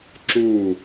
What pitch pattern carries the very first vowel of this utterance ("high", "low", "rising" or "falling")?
falling